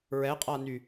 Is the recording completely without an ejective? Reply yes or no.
no